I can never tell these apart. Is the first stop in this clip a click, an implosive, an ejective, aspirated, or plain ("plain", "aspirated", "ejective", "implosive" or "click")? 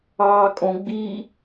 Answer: ejective